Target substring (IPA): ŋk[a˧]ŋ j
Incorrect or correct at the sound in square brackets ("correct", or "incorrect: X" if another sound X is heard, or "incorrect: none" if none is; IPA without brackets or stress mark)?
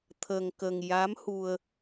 incorrect: ə˧